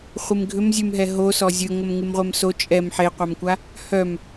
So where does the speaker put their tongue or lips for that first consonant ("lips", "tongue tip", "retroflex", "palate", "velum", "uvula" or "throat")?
uvula